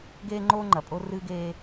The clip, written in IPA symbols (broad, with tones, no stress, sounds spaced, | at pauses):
ɡ eː˦ ŋ͡ǃ oː˦ ŋ͡ǃ ɐ˨ pʼ o˦ r ɨː˦ ɡ eː˦